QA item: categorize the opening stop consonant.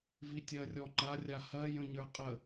plain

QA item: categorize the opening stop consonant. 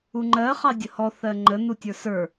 click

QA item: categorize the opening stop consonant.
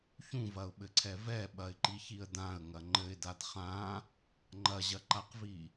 implosive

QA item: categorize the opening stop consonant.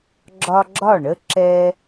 click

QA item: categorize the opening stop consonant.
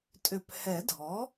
ejective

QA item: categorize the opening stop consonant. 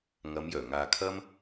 aspirated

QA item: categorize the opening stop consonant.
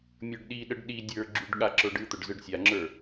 plain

